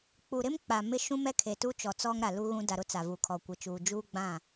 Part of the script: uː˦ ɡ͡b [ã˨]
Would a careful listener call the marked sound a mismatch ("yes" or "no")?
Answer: yes